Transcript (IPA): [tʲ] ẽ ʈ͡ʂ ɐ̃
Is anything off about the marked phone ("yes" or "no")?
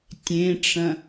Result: no